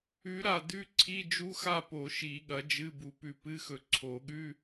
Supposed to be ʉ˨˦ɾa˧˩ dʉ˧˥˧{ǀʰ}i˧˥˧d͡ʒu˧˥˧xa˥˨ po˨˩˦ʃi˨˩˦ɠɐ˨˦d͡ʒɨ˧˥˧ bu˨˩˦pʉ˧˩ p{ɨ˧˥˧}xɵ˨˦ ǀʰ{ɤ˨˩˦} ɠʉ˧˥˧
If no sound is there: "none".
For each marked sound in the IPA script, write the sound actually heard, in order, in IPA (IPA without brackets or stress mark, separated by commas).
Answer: ǀʰ, ɨ˧˥˧, o˨˩˦